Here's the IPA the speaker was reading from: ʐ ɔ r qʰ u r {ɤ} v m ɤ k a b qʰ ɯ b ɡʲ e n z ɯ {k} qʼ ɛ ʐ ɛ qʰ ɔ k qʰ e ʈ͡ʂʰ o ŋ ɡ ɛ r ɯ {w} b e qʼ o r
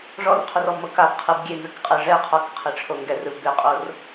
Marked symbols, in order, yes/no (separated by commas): no, yes, no